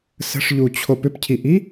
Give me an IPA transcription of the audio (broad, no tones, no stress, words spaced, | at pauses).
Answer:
sə̤ʂʎut͡ɕʰop ʏpcʰiʔi